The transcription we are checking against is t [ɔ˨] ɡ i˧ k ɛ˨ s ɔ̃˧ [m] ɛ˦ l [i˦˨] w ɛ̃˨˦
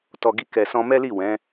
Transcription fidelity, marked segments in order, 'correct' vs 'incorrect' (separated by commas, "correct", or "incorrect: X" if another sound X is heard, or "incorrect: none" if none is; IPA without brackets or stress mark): correct, correct, correct